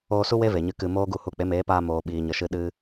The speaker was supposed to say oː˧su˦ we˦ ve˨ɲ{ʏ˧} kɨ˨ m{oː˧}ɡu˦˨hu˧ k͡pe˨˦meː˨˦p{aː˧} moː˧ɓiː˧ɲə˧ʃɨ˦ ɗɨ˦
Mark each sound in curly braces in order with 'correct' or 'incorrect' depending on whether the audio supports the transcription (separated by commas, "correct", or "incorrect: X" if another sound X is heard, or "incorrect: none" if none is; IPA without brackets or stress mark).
incorrect: ɨ˧, incorrect: oː˦, correct